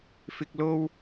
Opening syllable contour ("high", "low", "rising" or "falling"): low